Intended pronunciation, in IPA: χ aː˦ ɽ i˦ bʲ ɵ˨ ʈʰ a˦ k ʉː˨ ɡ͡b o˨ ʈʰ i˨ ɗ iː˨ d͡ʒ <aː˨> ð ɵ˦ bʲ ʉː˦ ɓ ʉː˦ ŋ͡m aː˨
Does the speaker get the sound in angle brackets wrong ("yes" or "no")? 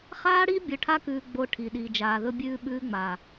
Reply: no